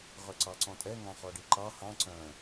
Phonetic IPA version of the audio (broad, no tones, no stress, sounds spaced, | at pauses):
ʁ œ ǀ ɑ ǀ ɔ̃ tʼ ɛ ŋ ɑ̃ χ ɔ ɖ i ǃ ɑ h ɑ̃ ǀ œ̃